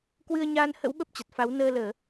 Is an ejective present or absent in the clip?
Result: absent